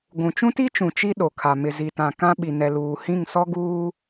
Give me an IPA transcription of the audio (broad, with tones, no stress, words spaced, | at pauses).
ɡʷũ˨t͡ʃũ˦ti˦t͡ʃũ˨ t͡ʃi˦ɗo˨kʰa˨ mɪ˨zi˨tã˨ kã˦ ɓi˨nɛ˨luː˨hĩ˦˨ŋ sɔ˦ɡuː˦